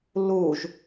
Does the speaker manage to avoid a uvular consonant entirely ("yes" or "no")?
yes